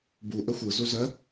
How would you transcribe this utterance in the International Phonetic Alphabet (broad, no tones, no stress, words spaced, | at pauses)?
bu ʔəxʷɯ zuzɜ